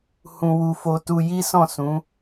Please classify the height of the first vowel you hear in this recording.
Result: high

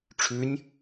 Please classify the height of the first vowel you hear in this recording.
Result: high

